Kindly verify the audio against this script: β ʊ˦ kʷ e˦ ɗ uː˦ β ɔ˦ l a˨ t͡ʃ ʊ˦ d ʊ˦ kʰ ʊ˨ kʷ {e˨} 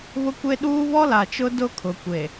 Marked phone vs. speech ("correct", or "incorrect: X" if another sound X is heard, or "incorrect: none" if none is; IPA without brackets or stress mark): correct